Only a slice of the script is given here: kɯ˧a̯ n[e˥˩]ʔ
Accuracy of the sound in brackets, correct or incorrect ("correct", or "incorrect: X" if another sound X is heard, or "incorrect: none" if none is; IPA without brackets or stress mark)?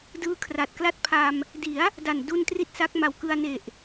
incorrect: e˨˩